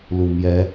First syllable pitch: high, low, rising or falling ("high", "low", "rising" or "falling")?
low